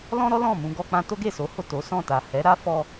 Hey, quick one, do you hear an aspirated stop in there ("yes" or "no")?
no